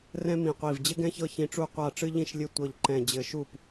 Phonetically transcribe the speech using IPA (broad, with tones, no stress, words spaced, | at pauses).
rɛ̃˥mĩ˧˩qʷi˧˩v d͡ʑɘ˥ɡɛ̃˥çɤ˥˩çĩ˧˩ ʈ͡ʂu˥˩qʷa˥˩ʈ͡ʂɨ˥ ʎĩ˥˩ʃ lʲɘ˥˩tʷɤ˧˩ʎ ǃɛ̃˧˩d͡ʑɘ˧˩ʃu˥˩p